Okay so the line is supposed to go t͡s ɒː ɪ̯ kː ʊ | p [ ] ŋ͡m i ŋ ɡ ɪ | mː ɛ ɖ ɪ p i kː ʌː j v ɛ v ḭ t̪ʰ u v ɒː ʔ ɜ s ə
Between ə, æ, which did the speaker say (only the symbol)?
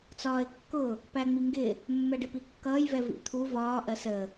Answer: æ